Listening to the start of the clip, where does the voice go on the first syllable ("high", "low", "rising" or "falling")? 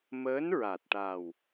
rising